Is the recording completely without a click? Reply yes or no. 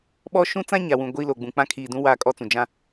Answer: yes